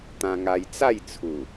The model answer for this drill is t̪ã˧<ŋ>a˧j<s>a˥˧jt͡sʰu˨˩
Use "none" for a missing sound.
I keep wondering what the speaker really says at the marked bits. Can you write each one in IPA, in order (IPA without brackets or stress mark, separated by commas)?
ŋ, t͡s